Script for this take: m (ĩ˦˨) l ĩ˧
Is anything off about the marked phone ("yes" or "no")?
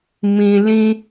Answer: yes